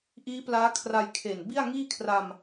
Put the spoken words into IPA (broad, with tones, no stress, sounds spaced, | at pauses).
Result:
ʔ iː˦˥ p l aː˦˥ kʰ r a˧ j kʰ e˨˩ n b i˥˩ a̯ ŋ iː˥˩ kʰ r a˧ m